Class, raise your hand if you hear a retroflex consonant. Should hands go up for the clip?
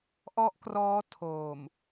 no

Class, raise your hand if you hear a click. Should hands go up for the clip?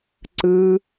yes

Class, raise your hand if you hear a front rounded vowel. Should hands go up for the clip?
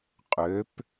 yes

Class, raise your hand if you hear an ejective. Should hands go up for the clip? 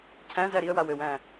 no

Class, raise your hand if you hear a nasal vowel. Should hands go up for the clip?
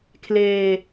no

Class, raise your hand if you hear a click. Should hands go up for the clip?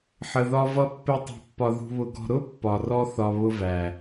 no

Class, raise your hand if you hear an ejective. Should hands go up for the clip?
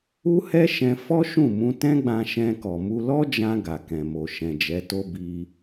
no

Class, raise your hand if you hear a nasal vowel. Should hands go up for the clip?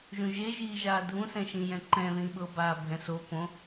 yes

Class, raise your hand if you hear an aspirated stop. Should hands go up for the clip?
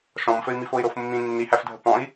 no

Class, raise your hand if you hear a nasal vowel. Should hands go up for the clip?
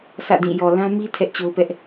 yes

